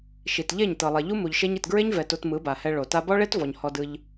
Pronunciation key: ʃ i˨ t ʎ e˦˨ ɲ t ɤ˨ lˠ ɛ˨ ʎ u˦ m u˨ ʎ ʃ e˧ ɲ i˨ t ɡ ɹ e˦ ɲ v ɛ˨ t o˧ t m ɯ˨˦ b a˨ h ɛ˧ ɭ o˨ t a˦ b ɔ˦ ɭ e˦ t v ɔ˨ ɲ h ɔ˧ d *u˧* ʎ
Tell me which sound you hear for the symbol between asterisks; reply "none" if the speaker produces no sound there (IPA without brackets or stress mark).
ɯ˧